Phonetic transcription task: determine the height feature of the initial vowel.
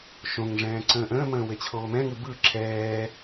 mid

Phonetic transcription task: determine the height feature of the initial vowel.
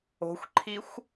mid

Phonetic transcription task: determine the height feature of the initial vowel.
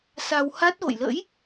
low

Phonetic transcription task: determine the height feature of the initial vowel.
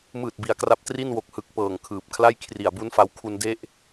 high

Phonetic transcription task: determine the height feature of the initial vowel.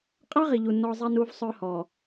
low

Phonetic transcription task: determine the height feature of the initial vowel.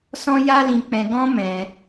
mid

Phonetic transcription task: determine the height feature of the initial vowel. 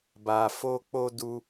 low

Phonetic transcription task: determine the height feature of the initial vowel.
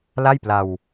low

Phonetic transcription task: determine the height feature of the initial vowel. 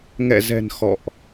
mid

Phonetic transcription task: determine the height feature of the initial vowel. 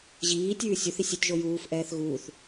high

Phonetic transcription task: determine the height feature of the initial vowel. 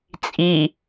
high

